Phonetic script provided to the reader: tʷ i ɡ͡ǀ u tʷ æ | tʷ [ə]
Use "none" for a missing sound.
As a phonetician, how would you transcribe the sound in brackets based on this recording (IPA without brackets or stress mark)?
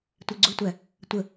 ə